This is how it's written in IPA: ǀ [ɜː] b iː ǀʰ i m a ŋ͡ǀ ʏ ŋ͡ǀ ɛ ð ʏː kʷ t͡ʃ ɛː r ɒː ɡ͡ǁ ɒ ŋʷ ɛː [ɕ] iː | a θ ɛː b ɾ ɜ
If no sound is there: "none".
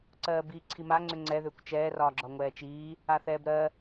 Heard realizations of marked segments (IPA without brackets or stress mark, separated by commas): ɜː, t͡ʃ